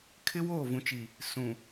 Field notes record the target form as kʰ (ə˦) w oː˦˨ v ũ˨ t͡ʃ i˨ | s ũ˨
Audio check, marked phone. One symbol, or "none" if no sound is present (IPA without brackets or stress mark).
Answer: ɪ˦